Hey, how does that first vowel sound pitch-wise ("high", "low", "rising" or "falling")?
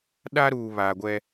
high